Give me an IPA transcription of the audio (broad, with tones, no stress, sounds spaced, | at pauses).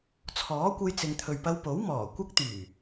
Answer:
t͡sʰ ɔː˨˥ kʷ ɐ˧ j t͡s ɪ˨ ŋ t̪ʰ ɵ˨ ɥ p ɐ˧ w p o˨˥ w m ɔː˨˩ kʷ ɐ˥ k̚ t̪ yː˨˩